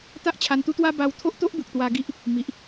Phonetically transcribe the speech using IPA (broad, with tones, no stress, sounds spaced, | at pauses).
t̪ a˦ ʔ t͡ɕʰ a˧ n t̪ u˦ t̪ w a˦ b a˧ w t̪ʰ o˦ ʔ t̪ o˦ ʔ b u˨ k̚ t̪ w a˧ ɡ i˦ ʔ | m i˨ ʔ